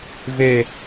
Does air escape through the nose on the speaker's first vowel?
no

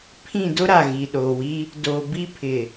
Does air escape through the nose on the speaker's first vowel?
yes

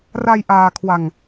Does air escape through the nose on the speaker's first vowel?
no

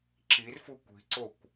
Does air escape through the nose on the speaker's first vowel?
no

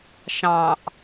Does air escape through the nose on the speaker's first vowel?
yes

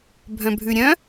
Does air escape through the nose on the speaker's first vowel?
yes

